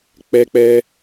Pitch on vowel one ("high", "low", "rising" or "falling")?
high